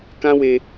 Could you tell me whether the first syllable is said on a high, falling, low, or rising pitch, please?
high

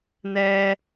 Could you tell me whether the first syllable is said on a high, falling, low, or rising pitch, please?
high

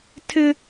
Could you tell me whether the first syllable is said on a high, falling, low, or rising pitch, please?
high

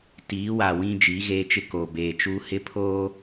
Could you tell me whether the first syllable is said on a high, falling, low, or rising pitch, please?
rising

